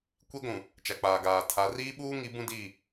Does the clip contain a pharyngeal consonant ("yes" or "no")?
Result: no